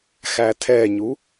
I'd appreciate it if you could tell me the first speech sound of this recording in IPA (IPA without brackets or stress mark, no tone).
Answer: x